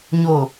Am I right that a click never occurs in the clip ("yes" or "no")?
yes